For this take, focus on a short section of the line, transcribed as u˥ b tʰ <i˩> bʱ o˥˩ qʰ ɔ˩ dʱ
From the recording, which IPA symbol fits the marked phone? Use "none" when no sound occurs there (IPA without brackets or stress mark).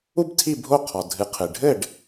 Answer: i˥˩